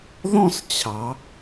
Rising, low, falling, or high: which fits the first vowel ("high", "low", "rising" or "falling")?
falling